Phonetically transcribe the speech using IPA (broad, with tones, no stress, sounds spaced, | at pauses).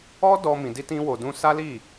ɔ˦ d ɔ˧ m ĩ˧ d i˦ t ĩ˦ w o˧ d ũ˦ s a˦ l i˦˨